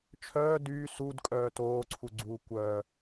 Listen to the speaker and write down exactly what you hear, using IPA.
t͡ʃʰ œː d yː s u d kʼ œː t oː ǀʰ u ɡ͡ǀ uː kʷ œ

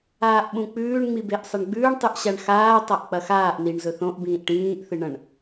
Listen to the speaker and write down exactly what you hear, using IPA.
aː ʔ ɓ ũ k͡p ʉː ɳ ŋ͡m i b e ʔ sˤ ɐ ɳ ɡ͡b ʉː ɳ tˤ ʉ ʔ ɕ a ɳ x aː tˤ a ʔ k͡p ɐ x aː ʔ n i ɳ z ɵ θ õ ʔ b ĩː ʔ ʈ ĩː ʔ θ ɨ ɳ ɐ̃ ɳ

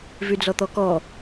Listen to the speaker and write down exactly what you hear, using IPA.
v y d͡z ɔ t̪ ɔ k ɔ

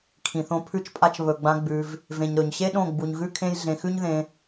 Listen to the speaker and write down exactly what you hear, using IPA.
kʰ ĩ˨ θ õ˧ pʰ ʉ˧ t͡ʃ pʼ a˧ t͡ʃ β ɵ˨ ɡ͡b ã˧ ɡ͡b ʉ˧ v | v ẽ˨ ɲ ɾ ɵ˨ ɲ ɕ e˦ ɗ õ˦˨ ɡ͡b u˨ ɲ ɣ ʉ˦ kʰ ẽ˦ j ɮ ẽ˧ x ʉ˦ ɲ ð ẽ˧

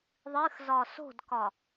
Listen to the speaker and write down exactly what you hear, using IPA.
ðˤ ɨ x z ɒ s o̤ d k ɒ

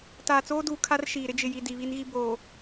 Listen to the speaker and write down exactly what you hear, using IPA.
t aː˨ t͡s oː˦ d uː˨ kʰ a˦ r ʃ iː˨ ɾ ɪ˦ d͡ʒ ɪ˨ j i˨ d i˨ β i˦ n ɣ i˦ b oː˨

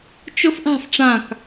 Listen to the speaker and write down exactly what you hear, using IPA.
t͡ʃ ʊ f ʔ a̤ f ʈ͡ʂ ã k

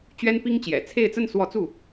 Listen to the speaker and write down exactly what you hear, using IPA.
t͡ɕ ɥ ɛ˥ n p i˥ ŋ t͡ɕ j ɛ̰˨˩ t͡sʰ e˥˧ ɪ̯ t͡s ə˥˧ n s w ɔ˥˧ t͡s u˥˩

